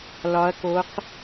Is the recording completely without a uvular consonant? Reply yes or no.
no